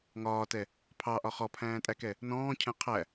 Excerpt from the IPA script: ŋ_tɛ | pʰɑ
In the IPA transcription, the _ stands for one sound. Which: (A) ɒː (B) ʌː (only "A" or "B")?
A